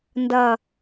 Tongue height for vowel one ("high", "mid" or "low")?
low